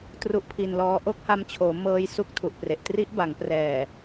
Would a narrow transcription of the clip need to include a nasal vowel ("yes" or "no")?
no